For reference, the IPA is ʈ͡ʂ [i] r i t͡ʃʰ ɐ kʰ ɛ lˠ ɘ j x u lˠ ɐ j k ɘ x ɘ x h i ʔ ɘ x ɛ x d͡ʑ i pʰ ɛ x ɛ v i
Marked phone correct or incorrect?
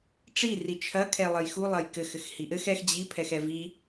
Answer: correct